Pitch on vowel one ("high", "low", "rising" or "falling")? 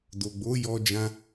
low